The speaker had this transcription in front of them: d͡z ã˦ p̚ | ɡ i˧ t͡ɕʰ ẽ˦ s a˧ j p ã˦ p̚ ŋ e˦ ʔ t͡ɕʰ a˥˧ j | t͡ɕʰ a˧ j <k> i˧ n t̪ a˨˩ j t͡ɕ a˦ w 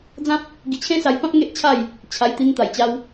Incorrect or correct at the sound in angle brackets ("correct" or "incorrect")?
incorrect